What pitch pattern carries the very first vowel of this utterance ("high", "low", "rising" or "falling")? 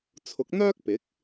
rising